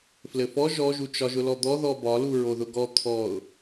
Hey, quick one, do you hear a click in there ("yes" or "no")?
no